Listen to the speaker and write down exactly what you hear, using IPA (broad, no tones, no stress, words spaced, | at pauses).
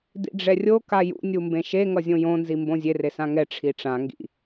dḭɖ͡ʐɛrʲo kajṵ nʲumbẽʃe ŋʌzʲõjõ nzimbõzʲe resãŋɛ ʈ͡ʂʰiʈ͡ʂã ŋɡḭ